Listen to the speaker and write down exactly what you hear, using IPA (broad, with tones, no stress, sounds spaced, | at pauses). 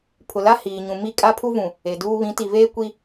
pʰ ʊ˨ l a˦ h iː˨ ɲ ũ˨ m i˦˨ kʼ a˦ pʰ u˦ v ũ˨ | e˨ d uː˦ β ĩ˨˦ t i˨ v eː˦ kʷ i˦